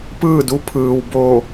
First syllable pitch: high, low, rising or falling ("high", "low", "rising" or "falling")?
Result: falling